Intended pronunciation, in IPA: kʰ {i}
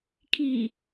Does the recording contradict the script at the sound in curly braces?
no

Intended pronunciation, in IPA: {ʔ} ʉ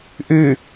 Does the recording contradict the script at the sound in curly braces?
no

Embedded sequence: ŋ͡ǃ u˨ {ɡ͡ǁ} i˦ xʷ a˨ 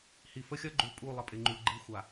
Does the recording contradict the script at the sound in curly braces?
yes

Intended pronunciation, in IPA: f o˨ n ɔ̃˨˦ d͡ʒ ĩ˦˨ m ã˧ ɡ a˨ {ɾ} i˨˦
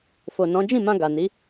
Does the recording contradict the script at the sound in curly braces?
yes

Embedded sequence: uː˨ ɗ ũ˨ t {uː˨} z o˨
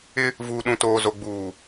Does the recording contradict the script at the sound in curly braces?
yes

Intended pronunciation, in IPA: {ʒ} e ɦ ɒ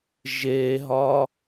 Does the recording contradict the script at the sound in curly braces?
no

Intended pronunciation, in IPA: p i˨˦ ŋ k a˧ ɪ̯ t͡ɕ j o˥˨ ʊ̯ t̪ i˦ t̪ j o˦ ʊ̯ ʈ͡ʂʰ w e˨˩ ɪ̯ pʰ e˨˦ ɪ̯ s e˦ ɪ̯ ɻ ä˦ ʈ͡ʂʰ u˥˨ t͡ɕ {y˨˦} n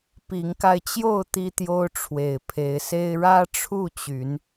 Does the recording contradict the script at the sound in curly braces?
no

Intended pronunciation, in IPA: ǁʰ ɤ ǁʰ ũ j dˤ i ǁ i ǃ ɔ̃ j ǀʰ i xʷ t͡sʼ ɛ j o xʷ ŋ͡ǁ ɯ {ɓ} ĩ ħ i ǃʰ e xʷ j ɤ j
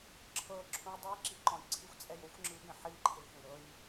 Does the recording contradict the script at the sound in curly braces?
no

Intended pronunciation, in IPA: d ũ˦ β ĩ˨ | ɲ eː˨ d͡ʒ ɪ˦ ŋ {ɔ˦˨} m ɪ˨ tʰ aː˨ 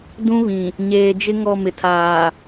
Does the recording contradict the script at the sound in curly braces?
no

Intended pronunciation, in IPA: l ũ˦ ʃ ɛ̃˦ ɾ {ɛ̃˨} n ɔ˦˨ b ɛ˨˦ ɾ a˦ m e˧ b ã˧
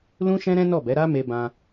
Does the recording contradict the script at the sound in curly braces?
yes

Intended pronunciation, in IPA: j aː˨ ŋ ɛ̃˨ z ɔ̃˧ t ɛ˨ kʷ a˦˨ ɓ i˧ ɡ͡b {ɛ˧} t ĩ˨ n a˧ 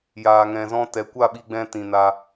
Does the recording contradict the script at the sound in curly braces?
yes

